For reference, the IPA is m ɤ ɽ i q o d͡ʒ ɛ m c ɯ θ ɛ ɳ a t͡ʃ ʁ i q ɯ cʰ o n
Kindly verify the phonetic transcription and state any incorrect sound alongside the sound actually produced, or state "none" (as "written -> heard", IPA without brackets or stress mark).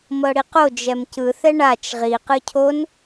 none